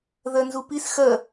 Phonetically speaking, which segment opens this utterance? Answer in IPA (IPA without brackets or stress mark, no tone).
ð